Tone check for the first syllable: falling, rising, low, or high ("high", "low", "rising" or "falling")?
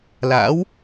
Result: rising